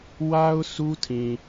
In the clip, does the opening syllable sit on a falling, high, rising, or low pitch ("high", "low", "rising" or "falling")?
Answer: high